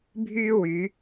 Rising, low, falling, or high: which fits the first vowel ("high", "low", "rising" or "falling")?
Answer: high